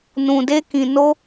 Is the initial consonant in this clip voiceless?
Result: no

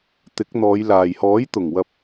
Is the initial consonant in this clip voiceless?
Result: yes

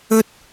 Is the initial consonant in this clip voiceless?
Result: yes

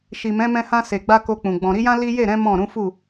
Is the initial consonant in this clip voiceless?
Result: yes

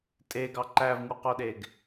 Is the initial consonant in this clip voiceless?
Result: yes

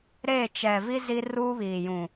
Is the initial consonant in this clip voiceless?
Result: no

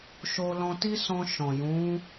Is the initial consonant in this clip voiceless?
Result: yes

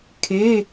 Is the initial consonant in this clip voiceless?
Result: yes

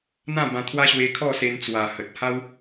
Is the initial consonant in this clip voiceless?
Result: no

